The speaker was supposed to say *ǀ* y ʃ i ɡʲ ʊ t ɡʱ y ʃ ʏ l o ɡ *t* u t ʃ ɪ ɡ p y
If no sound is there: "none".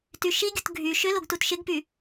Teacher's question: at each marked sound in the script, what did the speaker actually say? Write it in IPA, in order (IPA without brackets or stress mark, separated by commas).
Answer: t, t